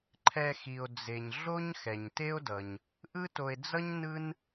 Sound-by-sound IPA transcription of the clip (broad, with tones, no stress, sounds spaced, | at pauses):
ǃʰ ɛ˨ x i˩ o̯ d͡z e˩ ɲ ɮ o˥ ɲ x ɛ˩ ɲ t e˥ o̯ d ʌ˩ ɲ | ʔ ɯ˥ t o˨ e̯ d͡z ʌ˥ ɲ n ɯ˥ n